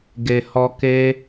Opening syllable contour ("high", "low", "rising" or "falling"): low